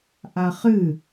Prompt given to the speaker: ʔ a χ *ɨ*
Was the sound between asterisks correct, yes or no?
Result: yes